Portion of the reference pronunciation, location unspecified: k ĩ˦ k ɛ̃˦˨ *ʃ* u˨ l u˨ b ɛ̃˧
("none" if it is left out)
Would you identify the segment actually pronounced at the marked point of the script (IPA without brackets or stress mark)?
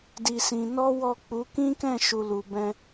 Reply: ʃ